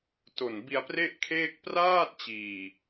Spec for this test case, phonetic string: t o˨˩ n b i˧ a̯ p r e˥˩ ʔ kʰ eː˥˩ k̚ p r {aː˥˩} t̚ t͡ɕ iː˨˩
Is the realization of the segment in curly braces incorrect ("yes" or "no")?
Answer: no